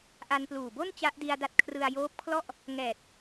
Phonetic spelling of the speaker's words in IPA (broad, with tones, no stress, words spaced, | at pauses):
ʔa˧npluː˨˩bo˥˩n t͡ɕa˦˥ʔdi˧a̯da˦˥t̚ kʰrɯ˧a̯joː˦˥p̚kʰlɔ˥˩ʔ | ŋɛː˨˩t̚